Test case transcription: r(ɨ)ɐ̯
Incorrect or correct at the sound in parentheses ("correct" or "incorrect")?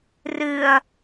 correct